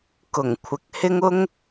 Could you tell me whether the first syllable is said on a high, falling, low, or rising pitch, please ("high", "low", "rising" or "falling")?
low